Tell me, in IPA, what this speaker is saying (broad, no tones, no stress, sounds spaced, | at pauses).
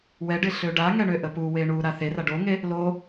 w ɛ ɖ ɪ ɬ ø ɖ a ŋ ɛ ɳ ø ʔ ə p u w e ɳ u ɾ a θ e r a ɖ o ŋ e | l o